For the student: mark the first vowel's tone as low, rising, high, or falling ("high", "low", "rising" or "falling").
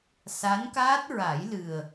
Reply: rising